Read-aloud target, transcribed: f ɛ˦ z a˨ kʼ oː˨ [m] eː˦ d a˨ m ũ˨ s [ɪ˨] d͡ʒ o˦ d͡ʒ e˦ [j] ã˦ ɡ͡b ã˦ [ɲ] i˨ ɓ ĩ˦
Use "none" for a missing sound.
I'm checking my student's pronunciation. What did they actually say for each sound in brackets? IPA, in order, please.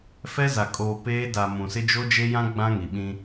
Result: p, ɪ˦, j, ŋ

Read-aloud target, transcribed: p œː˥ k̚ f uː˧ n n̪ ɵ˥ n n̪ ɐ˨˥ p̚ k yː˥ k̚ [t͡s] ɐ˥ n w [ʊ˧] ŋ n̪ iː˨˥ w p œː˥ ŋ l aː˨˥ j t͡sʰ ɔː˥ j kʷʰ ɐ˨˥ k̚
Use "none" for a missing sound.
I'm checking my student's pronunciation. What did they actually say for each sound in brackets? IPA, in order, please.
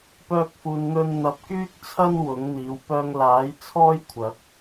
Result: t͡sʰ, ʊ˨˥

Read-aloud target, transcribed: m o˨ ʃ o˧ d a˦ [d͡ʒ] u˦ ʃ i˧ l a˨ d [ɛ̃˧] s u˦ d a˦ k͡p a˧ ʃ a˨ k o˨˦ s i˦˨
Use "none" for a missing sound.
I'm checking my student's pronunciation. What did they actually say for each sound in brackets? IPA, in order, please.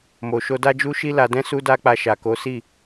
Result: d͡ʒ, ɛ̃˧

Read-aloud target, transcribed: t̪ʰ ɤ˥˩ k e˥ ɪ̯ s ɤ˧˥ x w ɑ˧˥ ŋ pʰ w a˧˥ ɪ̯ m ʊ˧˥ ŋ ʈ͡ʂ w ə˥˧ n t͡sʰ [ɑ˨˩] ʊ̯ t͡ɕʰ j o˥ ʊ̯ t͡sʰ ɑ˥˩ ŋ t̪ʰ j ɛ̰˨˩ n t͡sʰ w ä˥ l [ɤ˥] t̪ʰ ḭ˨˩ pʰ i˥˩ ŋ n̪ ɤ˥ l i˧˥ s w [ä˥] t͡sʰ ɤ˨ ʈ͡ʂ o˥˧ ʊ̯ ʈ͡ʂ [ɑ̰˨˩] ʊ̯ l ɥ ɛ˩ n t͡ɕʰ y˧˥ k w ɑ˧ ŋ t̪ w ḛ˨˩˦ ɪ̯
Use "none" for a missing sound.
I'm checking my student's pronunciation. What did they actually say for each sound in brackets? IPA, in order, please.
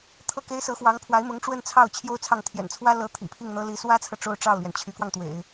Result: ɑ˥˩, ɤ˧˥, ä˥, ɑ˥˩

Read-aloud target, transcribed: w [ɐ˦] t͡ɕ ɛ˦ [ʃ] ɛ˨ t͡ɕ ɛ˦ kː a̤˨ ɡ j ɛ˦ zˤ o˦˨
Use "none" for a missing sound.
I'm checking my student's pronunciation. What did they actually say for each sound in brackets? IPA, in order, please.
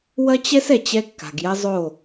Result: ɐ˦, s

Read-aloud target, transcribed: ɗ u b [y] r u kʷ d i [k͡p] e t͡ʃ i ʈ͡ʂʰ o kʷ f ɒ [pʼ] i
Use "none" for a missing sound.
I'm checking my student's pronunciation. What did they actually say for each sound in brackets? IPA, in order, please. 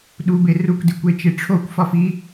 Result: e, kʷ, f

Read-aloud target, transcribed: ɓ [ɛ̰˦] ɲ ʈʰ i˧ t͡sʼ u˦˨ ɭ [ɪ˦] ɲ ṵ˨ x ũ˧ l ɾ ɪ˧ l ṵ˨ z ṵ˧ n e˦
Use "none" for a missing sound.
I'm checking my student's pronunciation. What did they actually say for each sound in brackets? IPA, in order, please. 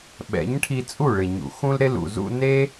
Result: ɛ̰˨˦, ɪ˨

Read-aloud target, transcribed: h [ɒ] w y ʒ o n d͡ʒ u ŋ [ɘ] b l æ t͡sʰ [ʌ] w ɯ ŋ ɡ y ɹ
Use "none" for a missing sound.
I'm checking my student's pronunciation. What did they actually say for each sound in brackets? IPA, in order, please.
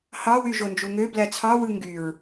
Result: ɑ, ø, ɑ

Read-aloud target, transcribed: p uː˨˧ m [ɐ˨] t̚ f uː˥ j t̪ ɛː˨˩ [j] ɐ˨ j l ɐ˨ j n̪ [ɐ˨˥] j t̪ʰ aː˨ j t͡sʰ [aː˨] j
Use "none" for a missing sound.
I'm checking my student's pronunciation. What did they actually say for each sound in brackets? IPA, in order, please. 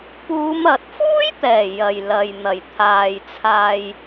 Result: ɐ˨, j, ɐ˨˩, aː˧

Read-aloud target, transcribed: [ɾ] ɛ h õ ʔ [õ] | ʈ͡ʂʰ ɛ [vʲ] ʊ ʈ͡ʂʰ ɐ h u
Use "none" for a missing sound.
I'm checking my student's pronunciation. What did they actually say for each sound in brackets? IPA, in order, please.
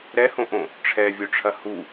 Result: ɾ, õ, vʲ

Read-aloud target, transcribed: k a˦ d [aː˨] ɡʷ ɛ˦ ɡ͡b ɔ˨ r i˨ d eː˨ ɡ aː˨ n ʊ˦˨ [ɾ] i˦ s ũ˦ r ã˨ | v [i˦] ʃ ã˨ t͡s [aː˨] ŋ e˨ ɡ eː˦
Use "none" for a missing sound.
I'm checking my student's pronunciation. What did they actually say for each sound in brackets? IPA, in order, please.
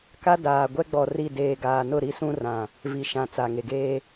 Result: aː˨, ɾ, i˨, a˨

